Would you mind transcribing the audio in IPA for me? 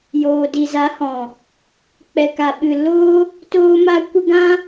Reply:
j oː˨ d i˨ z a˨˦ h ɔ̃˨ | k͡p ɛ˨ k a˨ ɓ ɨ˨ l o˦ | t oː˦ m a˦ kʷ ə˦ ɡ ã˦

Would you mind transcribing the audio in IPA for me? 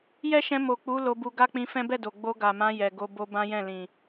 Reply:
j ɛ˦ ʃ ɛ̃˧ m o˨ k͡p u˨˦ l o˧ b u˧ ɡ a˦ k͡p ĩ˧ f ɛ̃˦ b ɛ˦˨ d o˨ ɡ͡b o˧ ɡ a˨ m ã˧ j ɛ˨ ɡ o˧ b o˦ b ã˦ j ɛ̃˦˨ l ĩ˨

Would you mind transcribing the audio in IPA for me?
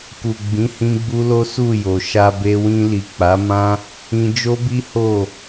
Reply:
k u˨ ɡ͡b ĩ˨˦ h ĩ˦ ɡ͡b u˦ l o˦ s u˦˨ j o˨ ʃ a˧ b e˧ w ĩ˧ l i˨ k͡p a˨˦ m ã˦ | ĩ˧ d͡ʒ o˦ b i˦ h o˦˨

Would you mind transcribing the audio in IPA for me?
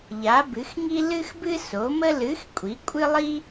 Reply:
ʎ a˨˥ b ɨ˨˥ x ŋ i˥ l ɨ˥ x b ɨ˥ s o˨˥ m ə˥ l ɨ˨˥ x kʷʼ i˨˥ kʷʼ ɨ˥ lˠ i˥

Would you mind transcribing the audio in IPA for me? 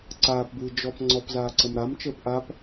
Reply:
ǀ aː p b ɨː d͡ʒ ɔ p ŋ͡ǀ ɔ p z aː ǀ ə m ɾ a m t͡ʃ əː p ʔ a p

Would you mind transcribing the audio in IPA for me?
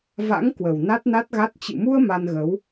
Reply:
v a̰˧˥ ŋ k w ə˨˩ w n a˦˥ t̚ n a˦˥ t̚ ɣ a˦˥ t̚ t͡ɕ ɨ̰˧˨ m u˧ ə̯ m a˧ n ɣ ə˨˦ w

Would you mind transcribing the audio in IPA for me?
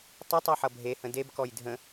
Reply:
tˤ ə tˤ ɛ ħ ʌ bʱ e h ə̃ d e b k ɔ j dʱ ə̃

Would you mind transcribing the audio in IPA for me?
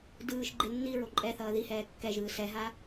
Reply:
d ɯː ʃ ɡ͡ǃ e nː i ɹ o ǃʼ ɛ θ ʌː ð i h ɛː kː ɛ ʒ ɯː s ɛ ɦ a

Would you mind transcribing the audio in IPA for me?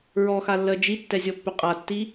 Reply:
ɹ ɔ x a lː ɜ d͡ʒ i tː ɛ zʲ ɔ pː ʏ qʼ a tː i

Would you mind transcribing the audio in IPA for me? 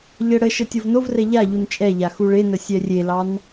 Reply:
ʎ ə ɽ ə ʃ ə tʲ o v n o v r ɛ ʎ a ʎ u n t͡ʃʼ ɛ ʎ a x u ɭ e n ə sʲ ɛ rʲ e l ɑ n

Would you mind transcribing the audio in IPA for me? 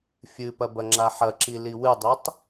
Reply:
fʲ ɨ p ɐ b ɐ ŋ͡ǁ a ħ ɐ ǁ i l i w ɨ dˤ i tˤ

